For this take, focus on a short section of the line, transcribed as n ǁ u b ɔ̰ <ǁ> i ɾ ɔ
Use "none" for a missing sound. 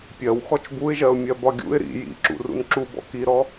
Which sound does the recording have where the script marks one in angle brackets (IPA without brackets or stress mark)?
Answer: k